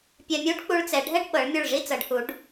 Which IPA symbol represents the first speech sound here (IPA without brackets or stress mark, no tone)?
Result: pʲ